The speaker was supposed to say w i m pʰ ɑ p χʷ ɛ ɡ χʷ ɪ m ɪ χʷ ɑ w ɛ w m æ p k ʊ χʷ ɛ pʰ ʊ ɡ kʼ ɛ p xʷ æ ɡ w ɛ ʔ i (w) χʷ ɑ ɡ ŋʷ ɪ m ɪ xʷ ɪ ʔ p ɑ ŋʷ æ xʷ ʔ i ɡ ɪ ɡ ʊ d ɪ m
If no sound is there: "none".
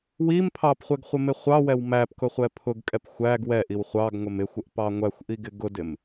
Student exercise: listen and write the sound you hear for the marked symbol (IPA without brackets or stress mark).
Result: w